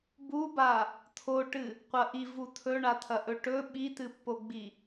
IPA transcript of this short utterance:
b u b a | t̪ʰ o ʈ ɨ | qʷ ɐ ʔ i v u t̪ʰ ɵ ɳ a t̪ʰ ɐ ʔ ɵ ʈ ɵ ɓ i t̪ ɨ pː o ɡ͡b i

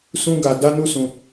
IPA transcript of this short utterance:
s ũ˦ ɡ a˧ d a˦ n u˦ s ũ˧

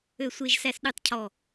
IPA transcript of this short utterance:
ø˨ sʷ e˨ ʒ s æ˨ s ɗ y˨ tˤ cʰ ɔ˨

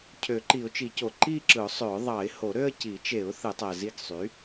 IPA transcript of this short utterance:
cʰ ø˨˩˦ ǃ i˨˩˦ ʊ̯ t͡ʃ i˨˩˦ c o˨˩˦ ǃ i˥˧ ǁ ɯ˨˩˦ ʊ̯ sˤ ø˨˩˦ ʊ̯ ðˤ ɑ˨˩˦ ɪ̯ h o˨˩˦ ɾ ø˥˧ ə̯ c i˨˩˦ t͡ʃ e˨˩˦ ʊ̯ θ ɯ˨˩˦ tˤ æ˨ z i˥˧ ɡ sˤ y˩˥

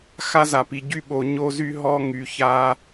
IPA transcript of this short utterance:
x a˦ z a˨ p i˨ ɟ y˦ ɓ o˨ ɲ o˦ z y˦ ɦ ɔ˦ ŋ y˨ ç a˦

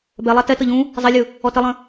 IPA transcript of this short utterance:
b ɛ lˠ a t ɛ t ɤ ʎ ũ | zˤ ɛ lʲ ɯ | ɔ t ə lˠ ə̃

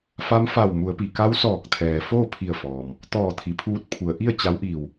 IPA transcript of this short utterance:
f a˧˥ m f a˧˩ w m u˩˧ ə̯ p i˩ k a˧˥ w s ɔː˧˩ k̚ t̪ʰ ɛː˩ f oː˥˨ pʰ i˧˩ ə̯ f ɔː˩ m | t̪ ɔː˧˩ t̪ʰ i˩ pʰ uː˧ t̚ pʰ u˩˧ ə̯ ʔ i˥˨ ə̯ t͡ɕ a˧˥ w ʔ iː˧˩ w

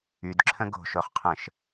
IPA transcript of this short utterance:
y d ǁʰ ə̃ ɡ o̤ ʃ o χ qʰ ə̃ ʃ

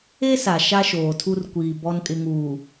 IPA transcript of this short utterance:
e˦ s a˨ ʃ a˦ ʃ oː˨ tʰ u˦ r kʷ iː˨ b ɔ˨ n kʼ ɪ˨ ŋ uː˨

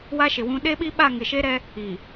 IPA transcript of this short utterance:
w a˦ ʃ ɪ˨ w ũ˦ ɗ e˦ ɓ i˦ ɓ a˦˨ ŋ ɪ˨ ʃ e˦ ɾ ɛ˦ | i˨

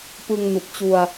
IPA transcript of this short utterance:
p ɯ˧ ŋ n u˨˩ k̚ t͡ɕ u˧ a̯

